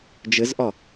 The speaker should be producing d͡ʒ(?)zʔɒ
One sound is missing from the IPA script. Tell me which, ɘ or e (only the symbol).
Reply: ɘ